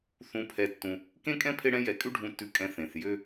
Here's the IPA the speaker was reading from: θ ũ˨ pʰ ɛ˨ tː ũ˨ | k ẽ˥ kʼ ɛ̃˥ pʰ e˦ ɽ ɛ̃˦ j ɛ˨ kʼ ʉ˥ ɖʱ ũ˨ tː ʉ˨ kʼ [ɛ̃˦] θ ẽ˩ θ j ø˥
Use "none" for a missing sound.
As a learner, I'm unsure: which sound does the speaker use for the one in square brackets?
ɛ̃˨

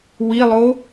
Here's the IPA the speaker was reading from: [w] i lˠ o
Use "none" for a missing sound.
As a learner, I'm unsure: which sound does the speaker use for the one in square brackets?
w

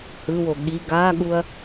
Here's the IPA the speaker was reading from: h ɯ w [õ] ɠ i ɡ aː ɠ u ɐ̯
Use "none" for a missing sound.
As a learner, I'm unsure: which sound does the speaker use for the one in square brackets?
o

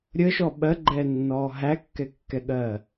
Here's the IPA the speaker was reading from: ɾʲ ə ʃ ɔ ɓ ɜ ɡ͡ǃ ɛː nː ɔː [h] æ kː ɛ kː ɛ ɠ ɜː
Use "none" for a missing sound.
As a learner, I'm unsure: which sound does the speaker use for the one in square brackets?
ɦ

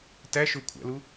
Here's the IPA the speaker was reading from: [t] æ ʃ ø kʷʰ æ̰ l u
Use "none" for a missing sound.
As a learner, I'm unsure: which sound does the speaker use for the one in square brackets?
t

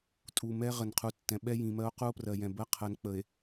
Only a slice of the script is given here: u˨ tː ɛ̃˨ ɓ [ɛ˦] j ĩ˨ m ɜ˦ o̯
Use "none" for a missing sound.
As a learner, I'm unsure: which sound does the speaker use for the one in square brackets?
ɛ˦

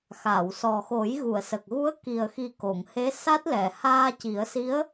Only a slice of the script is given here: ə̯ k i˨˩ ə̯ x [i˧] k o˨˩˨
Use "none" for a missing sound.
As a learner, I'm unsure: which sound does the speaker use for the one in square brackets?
i˨˩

